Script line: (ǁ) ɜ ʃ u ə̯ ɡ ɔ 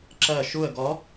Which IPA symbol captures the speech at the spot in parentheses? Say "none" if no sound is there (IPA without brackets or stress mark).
ǁ